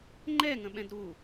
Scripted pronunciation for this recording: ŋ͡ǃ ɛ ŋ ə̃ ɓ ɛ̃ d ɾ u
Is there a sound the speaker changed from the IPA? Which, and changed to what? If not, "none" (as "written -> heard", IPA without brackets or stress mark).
none